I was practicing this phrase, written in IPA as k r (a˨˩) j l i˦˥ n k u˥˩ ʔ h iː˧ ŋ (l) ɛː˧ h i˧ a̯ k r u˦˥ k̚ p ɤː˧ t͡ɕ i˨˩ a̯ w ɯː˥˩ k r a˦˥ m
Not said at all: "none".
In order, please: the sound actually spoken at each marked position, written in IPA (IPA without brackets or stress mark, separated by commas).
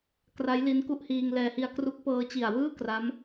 a˦˥, l